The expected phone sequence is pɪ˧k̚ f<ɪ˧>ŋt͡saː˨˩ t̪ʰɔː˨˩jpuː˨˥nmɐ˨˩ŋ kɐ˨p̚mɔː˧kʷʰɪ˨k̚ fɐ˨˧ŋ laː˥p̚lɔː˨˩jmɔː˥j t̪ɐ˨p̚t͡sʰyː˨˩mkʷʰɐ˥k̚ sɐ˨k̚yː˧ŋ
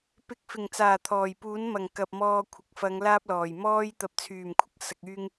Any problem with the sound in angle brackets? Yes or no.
yes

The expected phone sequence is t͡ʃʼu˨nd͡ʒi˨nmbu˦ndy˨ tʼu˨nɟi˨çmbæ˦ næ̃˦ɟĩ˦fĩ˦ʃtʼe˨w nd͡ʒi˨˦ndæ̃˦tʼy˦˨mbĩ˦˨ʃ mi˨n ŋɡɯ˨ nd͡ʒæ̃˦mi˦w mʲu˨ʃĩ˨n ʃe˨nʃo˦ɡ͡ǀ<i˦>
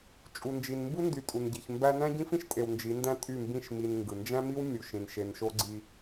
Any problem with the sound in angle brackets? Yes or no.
no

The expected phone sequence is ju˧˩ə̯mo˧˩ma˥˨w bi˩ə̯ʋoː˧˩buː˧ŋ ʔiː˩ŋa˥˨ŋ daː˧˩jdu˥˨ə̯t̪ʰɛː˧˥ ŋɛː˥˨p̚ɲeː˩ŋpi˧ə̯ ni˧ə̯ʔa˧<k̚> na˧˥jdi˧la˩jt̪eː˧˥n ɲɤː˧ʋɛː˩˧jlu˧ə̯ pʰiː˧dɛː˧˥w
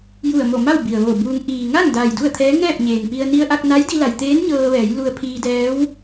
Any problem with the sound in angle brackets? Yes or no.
no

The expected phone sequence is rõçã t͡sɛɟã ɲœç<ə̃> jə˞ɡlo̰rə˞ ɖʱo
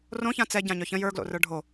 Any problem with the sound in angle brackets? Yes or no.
no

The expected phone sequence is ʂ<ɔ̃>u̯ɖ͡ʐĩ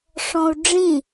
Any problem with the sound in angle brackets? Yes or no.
no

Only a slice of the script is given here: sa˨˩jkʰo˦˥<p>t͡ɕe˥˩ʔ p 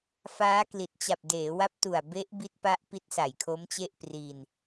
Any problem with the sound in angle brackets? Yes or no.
yes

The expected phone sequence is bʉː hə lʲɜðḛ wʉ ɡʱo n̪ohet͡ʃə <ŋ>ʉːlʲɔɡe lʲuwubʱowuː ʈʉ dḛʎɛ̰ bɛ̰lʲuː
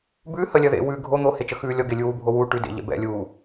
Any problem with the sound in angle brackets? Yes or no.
yes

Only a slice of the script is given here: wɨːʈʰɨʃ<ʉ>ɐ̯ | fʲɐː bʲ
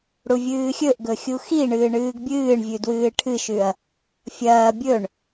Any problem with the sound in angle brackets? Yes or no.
no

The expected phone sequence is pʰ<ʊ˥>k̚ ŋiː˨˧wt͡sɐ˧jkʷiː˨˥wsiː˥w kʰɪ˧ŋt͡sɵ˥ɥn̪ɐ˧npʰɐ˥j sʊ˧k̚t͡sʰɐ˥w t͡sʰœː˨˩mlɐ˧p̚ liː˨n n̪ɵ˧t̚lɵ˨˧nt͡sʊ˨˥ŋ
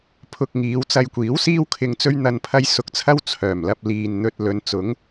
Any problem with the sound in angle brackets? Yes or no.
yes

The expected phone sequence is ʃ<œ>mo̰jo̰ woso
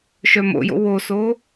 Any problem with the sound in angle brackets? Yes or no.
no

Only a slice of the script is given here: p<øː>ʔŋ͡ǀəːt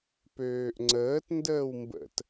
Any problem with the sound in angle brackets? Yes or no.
no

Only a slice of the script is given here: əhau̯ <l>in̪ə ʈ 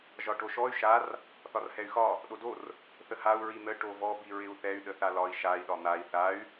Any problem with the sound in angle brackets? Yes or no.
yes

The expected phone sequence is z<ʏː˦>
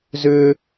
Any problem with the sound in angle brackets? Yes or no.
no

